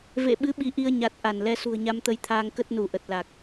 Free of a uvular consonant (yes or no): yes